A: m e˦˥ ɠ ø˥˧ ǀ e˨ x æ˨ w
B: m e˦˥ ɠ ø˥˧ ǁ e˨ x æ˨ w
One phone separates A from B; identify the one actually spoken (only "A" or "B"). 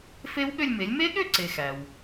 A